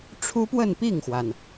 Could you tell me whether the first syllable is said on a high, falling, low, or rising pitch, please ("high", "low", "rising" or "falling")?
high